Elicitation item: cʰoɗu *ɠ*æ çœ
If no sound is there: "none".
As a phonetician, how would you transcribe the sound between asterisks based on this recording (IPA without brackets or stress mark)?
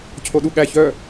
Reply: ɠ